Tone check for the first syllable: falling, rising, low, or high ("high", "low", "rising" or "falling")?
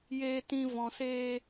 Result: high